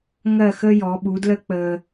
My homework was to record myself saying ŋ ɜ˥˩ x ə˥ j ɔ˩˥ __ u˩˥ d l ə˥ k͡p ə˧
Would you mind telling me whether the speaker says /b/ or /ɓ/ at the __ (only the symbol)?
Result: ɓ